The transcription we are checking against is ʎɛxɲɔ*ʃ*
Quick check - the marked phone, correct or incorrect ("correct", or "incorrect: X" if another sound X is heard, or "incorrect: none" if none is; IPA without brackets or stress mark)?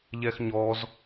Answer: incorrect: z